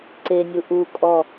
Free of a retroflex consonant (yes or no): yes